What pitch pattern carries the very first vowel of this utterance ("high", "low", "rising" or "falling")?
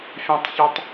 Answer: high